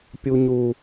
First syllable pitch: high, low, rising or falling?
low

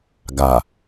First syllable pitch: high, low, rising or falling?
low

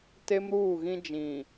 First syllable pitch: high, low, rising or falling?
high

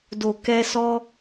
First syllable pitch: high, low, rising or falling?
low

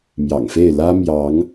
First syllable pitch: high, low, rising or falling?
low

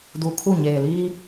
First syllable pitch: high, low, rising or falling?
low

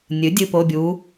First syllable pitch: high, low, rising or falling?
rising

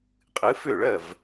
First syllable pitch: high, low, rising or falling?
rising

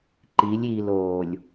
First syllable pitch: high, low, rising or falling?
rising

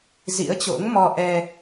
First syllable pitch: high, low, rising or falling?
rising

